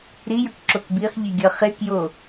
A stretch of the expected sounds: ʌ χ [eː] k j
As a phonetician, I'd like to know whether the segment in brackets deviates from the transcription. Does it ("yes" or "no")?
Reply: yes